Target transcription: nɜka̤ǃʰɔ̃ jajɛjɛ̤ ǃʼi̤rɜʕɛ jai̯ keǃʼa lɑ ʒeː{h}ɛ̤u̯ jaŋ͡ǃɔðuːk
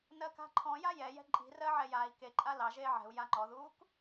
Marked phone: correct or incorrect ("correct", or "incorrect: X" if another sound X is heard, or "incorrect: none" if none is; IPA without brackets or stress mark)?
incorrect: ʕ